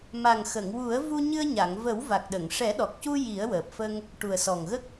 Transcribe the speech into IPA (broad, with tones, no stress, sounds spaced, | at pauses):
m a˨˩ ŋ x ə˨˩˨ ŋ w u˨˩˦ ə̯ v u˧ ɲ ɨ˧ ə̯ ɲ a˨˩˨ ŋ v ə˨˩˦ w v a˨˩ k̚ ɗ ə˨˩˨ ŋ ʂ ɛ˨˩˦ ɗ ɔ˨˩ k̚ c u˧ j i˨˩˦ ə̯ w əː˨˩ p̚ f ə˧ ŋ | ʈ u˨˩ ə̯ s ɔ˨˩ ŋ ɣ ə˦˥ k̚